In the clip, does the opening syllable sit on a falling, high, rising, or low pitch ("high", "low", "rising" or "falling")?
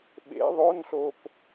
rising